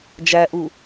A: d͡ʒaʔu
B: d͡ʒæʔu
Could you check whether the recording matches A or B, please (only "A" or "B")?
B